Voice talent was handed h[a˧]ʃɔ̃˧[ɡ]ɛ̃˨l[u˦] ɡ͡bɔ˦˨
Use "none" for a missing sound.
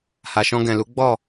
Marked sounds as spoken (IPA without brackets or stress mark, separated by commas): a˨, ɡ, u˨˦